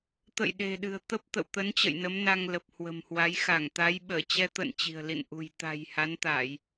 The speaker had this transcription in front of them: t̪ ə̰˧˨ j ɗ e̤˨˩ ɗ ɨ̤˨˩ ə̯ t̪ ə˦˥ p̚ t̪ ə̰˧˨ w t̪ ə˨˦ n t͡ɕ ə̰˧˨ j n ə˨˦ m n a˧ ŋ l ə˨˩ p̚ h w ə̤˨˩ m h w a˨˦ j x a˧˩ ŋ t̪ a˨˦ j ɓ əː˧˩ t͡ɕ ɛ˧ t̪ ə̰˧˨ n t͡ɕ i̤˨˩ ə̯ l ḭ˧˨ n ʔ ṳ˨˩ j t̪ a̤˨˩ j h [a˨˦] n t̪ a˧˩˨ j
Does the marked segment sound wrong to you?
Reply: no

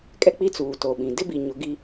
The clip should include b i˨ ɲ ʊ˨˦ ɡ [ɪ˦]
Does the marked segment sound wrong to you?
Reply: yes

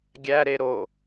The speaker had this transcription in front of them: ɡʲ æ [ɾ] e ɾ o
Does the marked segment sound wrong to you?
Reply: no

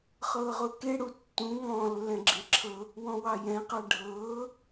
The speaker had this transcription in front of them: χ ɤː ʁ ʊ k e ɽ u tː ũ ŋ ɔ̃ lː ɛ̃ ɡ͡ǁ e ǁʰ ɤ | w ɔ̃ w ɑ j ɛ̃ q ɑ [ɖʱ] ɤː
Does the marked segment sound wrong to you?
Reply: no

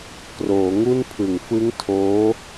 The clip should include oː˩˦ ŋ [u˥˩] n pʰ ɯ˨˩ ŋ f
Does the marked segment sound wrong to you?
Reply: no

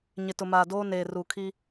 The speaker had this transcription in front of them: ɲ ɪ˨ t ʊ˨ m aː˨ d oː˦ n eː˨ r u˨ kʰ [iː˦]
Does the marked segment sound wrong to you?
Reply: yes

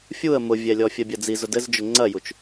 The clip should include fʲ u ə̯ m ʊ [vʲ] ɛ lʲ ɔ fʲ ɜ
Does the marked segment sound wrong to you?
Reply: no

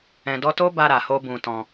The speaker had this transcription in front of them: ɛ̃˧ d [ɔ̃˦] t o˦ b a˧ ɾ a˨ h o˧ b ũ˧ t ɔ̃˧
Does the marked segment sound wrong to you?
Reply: yes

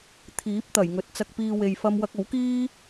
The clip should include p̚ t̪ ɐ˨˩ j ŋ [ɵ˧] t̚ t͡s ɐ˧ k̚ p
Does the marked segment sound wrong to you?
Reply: yes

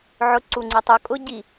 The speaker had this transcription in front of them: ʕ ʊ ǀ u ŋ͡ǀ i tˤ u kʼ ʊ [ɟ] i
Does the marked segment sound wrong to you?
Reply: no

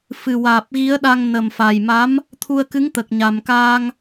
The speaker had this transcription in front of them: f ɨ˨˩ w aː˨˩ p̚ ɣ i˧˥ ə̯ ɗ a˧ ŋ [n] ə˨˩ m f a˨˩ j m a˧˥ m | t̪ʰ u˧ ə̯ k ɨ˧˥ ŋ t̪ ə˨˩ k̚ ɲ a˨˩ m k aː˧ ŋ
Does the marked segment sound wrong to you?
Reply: no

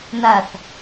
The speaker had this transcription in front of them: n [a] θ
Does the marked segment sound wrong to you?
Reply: no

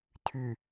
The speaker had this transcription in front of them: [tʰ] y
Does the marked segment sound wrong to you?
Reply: no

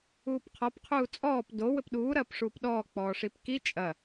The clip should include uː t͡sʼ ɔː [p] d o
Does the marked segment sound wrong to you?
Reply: no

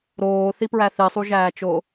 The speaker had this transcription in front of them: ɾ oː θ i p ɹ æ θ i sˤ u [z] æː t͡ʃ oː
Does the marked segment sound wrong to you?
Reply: yes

